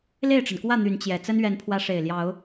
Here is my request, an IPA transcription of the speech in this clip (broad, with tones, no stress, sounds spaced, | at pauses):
l e˥˨ ɪ̯ ʈ͡ʂ ə˩ n k w ä˥˨ n̪ y˨˦ n t͡ɕ j ɛ˨˩ t͡s ə˦ n ɥ ɛ˨˦ n pʰ w ä˨˦ ʂ e˨˩ ɪ̯ l j ɑ˨˦ ʊ̯